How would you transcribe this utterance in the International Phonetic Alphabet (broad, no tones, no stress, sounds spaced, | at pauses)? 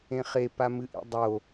ẽ χ e p a m ɨ ʔ ḭ dˤ o